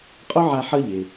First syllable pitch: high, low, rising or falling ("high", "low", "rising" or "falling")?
high